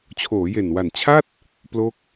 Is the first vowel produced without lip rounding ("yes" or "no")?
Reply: no